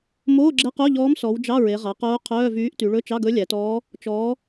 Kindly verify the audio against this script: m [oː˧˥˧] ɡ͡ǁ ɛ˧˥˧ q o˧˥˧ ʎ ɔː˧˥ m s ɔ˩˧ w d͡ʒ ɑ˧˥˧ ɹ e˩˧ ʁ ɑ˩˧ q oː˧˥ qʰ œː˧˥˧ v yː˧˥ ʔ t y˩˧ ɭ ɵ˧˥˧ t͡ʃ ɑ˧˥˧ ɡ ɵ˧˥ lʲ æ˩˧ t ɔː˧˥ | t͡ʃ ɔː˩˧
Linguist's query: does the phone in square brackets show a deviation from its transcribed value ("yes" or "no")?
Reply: no